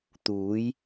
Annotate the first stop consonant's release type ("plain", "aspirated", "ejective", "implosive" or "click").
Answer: plain